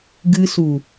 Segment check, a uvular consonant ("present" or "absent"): absent